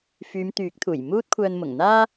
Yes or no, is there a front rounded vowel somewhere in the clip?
yes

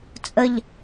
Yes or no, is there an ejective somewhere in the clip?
yes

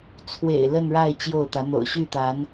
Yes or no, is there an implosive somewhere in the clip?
no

